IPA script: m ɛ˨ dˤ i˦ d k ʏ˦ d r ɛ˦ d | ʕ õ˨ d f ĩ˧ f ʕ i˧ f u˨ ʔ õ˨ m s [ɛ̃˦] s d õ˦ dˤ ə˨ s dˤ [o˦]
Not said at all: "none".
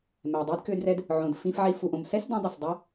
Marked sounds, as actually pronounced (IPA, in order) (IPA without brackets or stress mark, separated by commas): ɛ˦, o˦